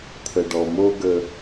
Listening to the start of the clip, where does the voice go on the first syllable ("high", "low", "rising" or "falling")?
low